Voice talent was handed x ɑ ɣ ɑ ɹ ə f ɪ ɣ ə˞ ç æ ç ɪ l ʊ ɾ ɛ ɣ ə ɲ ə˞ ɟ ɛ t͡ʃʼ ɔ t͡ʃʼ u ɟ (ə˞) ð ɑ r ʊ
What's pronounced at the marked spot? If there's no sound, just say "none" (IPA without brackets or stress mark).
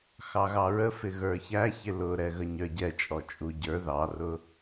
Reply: ə˞